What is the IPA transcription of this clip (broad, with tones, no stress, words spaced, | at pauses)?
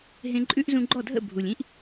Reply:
ɦẽ˧ǃʼʉ˥ʔ zũ˧ɡ͡ǃɔ˥˩dʱə̰˥˩ bʱu˩lʲĩ˥ʔ